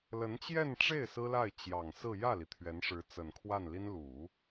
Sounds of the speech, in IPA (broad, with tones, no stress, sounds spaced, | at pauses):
l ə˧˥ n t͡ɕ j ɛ˥˧ n ʈ͡ʂ e˥˩ ɪ̯ s ɹ̩˥ l a˥˩ ɪ̯ t͡ɕ j ɑ˨˩ ŋ s ɹ̩˥˧ j ä˥˩ l i˩ t̪ʰ ɥ ɛ˧˥ n ʂ ɻ̩˧˥ t͡s ə˨˩ n kʰ w a˥˩ n l i˥ n l u˨˩˦